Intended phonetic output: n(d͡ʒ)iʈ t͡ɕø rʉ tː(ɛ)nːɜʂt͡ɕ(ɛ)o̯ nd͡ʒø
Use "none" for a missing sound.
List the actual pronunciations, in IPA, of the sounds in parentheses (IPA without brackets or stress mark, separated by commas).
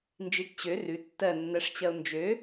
d͡ʒ, ɜ, ɜ